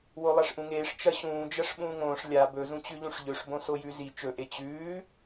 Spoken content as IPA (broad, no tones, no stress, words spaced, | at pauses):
wolˠaʂʔũŋeːʂ t͡ʃɐɕũːd͡ʒɐʂ ɓũːŋõːʂ lʲa bɵzũt͡ɕʉʎũʂ ʎɵʂbõ sojʉzi t͡ʃɵʔe t͡ɕʉː